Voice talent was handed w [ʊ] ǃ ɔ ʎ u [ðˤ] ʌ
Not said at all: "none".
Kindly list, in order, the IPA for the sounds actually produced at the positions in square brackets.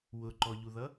ʊ, ð

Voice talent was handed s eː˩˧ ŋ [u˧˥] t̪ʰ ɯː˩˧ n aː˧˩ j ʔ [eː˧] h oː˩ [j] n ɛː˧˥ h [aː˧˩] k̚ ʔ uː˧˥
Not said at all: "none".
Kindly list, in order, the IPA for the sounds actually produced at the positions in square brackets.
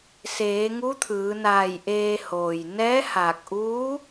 u˧˥, eː˧, j, aː˧˩

